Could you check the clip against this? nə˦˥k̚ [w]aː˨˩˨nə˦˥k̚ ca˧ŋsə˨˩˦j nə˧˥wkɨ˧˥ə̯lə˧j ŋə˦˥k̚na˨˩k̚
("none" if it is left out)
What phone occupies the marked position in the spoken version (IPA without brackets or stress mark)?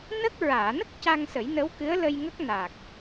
ɹ